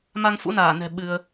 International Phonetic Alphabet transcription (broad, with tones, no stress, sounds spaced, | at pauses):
m a˧ ŋ f ṵ˧˥ n aː˧˩ n ɛ̤˨˩ ɓ ɨ˧ ə̯